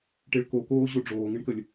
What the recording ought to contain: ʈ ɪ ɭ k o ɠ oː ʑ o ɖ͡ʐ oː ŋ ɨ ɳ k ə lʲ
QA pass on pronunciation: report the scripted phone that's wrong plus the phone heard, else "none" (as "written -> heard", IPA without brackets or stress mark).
ɠ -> k